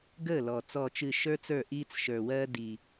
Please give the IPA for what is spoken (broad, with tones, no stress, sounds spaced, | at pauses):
ɡ əː˥˩ l ɔ˨˩ t͡s ɔ˥˩ t͡ʃ ɨ˥˩ ʃ ə˞˥ t͡s ə˞˥˩ ʔ iː˥ t͡s ʃ ə˞˨˩ w ɜː˥ d i˨˩